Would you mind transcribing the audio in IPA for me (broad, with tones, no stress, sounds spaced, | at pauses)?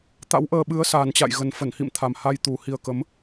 t̪ a̰˧˥ w ʔ əː˧ ɓ ɨ˨˦ ə̯ s a˨˩ n t͡ɕ a̰˧˨ j ɣ ə˨˩ n f ə˧˩ n h ḭ˧˨ m t̪ʰ a˨˩ m h a˧ j t̪ u˨˩ h i˨˩ ə̯ k ə˨˦ m